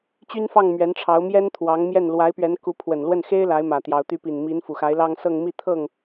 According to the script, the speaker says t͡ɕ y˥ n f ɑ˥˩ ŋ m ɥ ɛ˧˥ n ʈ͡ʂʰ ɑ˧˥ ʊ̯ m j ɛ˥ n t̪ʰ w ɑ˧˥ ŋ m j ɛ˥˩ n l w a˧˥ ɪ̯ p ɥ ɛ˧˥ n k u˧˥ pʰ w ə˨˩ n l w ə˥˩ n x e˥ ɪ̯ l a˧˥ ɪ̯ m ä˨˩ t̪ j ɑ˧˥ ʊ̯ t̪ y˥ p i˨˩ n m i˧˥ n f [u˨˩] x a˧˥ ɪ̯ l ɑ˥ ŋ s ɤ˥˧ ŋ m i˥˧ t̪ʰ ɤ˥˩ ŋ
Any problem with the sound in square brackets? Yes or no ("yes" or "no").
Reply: no